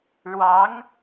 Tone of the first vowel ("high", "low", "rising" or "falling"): rising